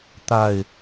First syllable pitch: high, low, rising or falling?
falling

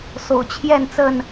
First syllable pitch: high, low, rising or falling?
low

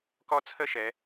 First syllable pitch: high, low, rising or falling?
high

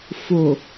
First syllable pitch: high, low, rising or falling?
low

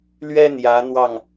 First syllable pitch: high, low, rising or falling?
high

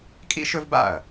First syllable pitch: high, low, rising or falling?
high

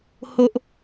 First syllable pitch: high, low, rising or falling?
high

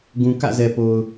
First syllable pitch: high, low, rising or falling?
low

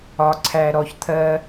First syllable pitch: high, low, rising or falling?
low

